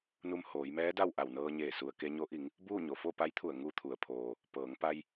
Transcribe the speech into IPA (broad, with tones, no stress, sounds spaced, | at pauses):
n u˧ m h oː˩˧ j m ɛː˧˥ d a˥˨ w ʔ a˧˩ w n ɤː˧ ɲ eː˧˩ s u˩ ə̯ k e˧ ɲ o˧˥ ʔ i˩˧ ŋ | b uː˥˨ ɲ o˩ f o˥˨ p a˧˥ j t̪ʰ u˧˩ ə̯ ŋ u˧ t̪ʰ u˩ ə̯ pʰ oː˩ | p ɤː˩˧ ŋ p a˧ j